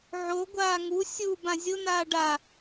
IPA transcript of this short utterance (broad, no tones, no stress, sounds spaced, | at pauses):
ʕ o ɡʷ aː ŋ u sʲ u b ã zʲ ʊ n̪ aː ɖ a